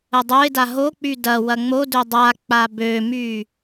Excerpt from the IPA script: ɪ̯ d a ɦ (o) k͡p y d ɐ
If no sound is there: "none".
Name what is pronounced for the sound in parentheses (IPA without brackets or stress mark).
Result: o